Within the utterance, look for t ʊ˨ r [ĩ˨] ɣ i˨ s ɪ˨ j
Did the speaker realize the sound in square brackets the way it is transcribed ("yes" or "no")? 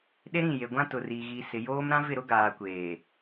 no